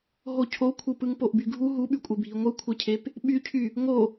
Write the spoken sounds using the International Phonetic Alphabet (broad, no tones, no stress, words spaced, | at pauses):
ɦocʰokʷʰɯ pɯŋpoʔbyɡʱu ɦuɓykʷʼe bʱiŋʷɯkʷʰecʰep | ɓycʰy | ŋo